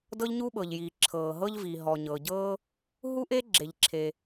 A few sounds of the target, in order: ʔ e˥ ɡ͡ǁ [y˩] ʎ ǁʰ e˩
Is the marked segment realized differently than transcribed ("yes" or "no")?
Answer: yes